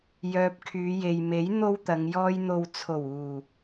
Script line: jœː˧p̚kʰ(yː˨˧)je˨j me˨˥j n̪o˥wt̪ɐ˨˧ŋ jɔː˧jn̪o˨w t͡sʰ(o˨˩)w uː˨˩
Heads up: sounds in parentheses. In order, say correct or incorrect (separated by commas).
correct, correct